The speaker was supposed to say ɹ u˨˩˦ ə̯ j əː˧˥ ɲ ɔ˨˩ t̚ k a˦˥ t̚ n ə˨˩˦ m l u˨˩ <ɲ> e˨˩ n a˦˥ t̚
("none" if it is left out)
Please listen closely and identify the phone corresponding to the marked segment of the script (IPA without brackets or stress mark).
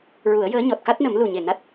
ɲ